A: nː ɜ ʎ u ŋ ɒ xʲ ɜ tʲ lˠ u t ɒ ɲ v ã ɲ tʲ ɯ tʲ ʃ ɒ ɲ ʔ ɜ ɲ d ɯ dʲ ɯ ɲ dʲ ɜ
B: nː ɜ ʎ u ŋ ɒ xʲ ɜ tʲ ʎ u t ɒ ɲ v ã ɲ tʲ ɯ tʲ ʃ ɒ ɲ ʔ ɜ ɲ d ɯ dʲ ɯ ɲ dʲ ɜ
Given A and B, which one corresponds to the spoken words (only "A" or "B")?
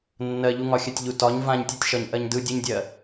B